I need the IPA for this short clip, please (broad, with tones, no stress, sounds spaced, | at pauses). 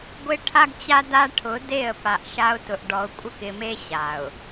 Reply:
ɡʷ ɪ˦ ʈʰ a˦ ɡ t͡ɕ a˦ d a˦ ʈʰ ʊ˨˦ d e˦˨ ə̯ p a˨ ʔ ʃ a˦ ʊ̯ t ʊ˨ ʔ ɖ ɔ˨ ʊ̯ kʷʼ ɪ˦ k ɪ˨ m e˦ ɕ a˨ ʊ̯